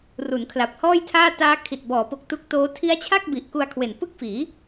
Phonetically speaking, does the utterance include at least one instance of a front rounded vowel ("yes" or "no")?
no